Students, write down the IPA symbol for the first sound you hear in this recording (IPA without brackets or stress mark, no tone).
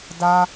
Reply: d